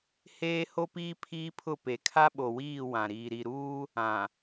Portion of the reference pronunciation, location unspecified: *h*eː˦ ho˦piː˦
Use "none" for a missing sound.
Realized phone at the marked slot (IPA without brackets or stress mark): h